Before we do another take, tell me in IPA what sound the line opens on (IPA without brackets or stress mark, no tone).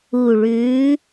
u